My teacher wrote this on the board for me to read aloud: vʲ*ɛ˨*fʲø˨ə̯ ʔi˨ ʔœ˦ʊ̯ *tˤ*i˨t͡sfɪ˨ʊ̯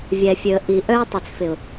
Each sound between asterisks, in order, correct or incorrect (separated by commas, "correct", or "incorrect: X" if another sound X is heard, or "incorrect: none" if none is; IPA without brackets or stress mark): correct, correct